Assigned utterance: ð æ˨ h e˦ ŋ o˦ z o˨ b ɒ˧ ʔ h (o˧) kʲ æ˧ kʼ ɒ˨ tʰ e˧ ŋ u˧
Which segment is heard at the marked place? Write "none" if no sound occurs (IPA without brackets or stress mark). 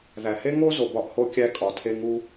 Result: o˧